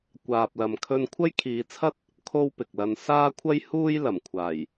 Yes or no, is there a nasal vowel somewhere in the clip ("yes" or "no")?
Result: no